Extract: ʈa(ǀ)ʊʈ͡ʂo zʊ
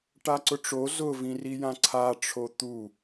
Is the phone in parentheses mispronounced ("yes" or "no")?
no